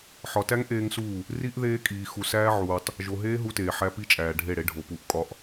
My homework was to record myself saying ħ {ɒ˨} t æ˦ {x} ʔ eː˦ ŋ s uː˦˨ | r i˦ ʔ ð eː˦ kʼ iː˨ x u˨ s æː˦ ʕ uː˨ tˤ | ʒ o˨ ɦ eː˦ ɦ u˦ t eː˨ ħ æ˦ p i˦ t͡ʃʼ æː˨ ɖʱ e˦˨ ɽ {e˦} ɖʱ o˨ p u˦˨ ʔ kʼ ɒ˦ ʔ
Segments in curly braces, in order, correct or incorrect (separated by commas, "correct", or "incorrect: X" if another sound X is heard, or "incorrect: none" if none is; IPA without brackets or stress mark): correct, incorrect: ŋ, correct